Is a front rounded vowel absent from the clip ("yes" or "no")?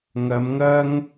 yes